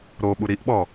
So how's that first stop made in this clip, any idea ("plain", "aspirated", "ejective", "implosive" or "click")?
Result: implosive